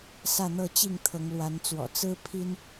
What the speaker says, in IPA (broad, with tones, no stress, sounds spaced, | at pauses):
s ä˥˨ n̪ ɤ˥˨ t͡ɕ i˥˨ ŋ t̪ʰ ɤ˨˦ ŋ l w a˨˦ n t͡s w ɔ̰˨˩ t͡s ɹ̩˦ pʰ i˦ n